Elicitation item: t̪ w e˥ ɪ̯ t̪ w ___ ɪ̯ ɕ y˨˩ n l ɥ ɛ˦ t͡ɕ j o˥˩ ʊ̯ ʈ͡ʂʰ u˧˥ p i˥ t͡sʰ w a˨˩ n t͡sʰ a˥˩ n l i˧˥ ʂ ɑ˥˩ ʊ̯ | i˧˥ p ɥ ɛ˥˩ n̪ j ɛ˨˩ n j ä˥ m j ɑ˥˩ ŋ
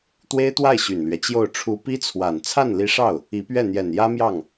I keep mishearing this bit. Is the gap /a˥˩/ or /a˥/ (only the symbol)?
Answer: a˥˩